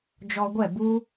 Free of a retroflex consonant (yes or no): yes